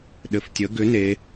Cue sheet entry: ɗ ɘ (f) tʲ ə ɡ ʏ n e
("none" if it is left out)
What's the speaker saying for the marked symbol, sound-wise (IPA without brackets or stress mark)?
f